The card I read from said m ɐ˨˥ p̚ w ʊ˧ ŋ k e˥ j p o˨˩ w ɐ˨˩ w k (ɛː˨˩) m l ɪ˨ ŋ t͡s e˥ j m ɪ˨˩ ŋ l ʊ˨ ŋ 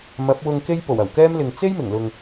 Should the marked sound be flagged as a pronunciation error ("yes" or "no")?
yes